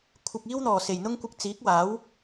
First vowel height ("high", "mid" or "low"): high